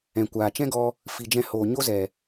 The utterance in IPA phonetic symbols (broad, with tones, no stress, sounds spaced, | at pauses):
ɛ̃˨ kʷ aː˨ t͡ʃ ɛ̃˦ ɡ ɔ˧ | f i˨ d͡ʒ ɛ̃˧ h oː˨ ɲ o˦ z ɛ˨